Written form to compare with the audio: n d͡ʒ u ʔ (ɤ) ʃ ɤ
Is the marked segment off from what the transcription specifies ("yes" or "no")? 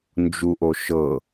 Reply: yes